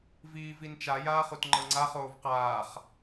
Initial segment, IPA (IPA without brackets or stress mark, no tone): v